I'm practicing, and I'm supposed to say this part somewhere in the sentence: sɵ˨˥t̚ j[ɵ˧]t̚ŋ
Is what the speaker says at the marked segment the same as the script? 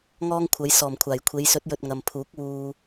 no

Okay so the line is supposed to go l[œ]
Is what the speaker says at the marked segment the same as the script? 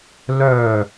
yes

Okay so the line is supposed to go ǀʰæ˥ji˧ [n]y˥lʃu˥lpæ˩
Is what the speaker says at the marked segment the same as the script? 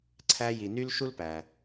yes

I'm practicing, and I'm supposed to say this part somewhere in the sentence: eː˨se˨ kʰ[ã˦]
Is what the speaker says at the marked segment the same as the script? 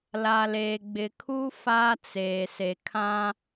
yes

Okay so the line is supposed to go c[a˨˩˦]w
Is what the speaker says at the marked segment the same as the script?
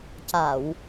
no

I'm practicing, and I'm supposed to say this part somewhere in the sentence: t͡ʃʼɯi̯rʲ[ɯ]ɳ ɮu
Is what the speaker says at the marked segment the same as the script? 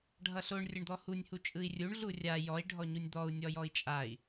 no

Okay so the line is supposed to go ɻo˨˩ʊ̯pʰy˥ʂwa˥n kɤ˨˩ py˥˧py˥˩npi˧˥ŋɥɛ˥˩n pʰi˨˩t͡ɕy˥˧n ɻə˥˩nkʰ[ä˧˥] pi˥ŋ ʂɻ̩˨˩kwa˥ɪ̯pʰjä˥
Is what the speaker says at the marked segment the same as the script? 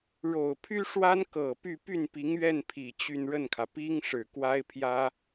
no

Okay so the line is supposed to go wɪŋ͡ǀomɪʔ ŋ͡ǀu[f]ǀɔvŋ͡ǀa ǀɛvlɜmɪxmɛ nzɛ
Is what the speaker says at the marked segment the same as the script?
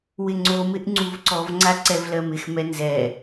no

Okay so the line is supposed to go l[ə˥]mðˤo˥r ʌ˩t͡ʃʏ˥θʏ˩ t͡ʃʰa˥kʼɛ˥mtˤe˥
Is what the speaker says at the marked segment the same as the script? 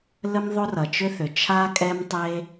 yes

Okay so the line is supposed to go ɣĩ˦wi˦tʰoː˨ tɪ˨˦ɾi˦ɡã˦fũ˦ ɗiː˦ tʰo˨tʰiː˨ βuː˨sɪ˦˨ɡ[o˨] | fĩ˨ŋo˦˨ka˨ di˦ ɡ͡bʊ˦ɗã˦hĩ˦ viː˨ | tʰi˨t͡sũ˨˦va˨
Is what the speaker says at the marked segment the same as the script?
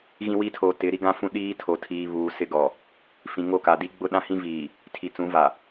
no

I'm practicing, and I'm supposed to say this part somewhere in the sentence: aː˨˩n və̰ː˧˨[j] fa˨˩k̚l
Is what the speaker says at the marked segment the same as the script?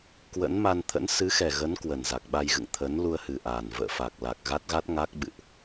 no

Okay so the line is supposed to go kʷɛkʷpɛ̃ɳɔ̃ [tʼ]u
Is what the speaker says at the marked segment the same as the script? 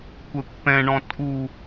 yes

